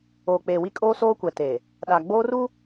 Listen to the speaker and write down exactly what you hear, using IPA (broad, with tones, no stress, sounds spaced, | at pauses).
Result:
oː˨ k͡p eː˨ w i˦ kʼ oː˦ s oː˦ kʷ ɛ˨ t e˨ | ɗ a˨ ɡ͡b oː˦ r u˦